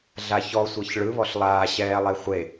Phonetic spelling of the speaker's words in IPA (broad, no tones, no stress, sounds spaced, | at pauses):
ɮ a ç ɔ sʷ ɤ ç ɭ ɯ β ɔ ɬ lˠ aː ɕ ɛː lˠ e χʷ e